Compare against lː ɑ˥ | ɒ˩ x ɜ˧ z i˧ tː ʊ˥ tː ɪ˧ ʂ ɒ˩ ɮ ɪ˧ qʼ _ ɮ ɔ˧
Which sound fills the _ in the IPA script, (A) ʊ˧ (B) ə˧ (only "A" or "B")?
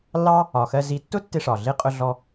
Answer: A